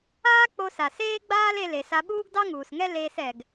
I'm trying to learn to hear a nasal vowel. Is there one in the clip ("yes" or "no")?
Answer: no